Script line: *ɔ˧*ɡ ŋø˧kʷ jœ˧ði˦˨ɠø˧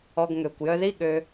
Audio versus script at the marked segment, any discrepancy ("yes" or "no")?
no